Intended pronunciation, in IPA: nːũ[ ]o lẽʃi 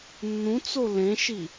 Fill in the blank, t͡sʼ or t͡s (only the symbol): t͡s